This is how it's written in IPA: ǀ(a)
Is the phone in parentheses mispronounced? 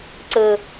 yes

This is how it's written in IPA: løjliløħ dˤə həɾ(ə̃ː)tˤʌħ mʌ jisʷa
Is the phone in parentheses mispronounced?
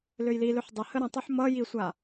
yes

